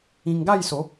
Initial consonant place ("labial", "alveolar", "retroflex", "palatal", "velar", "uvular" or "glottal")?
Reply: velar